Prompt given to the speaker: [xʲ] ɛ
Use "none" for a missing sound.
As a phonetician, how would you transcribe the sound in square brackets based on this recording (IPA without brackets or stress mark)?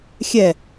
xʲ